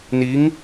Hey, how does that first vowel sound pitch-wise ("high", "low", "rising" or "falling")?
rising